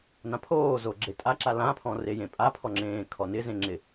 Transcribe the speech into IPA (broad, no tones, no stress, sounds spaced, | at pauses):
n ã pʰ oː z o ɡ͡ǁ e tʼ a ǁ a l ã pʰ ɔ̃ r e j ẽ pʼ a pʰ ɔ ŋ͡ǁ ẽː kʰ ɔ n ɪ z ẽ ŋ͡ǁ ɪ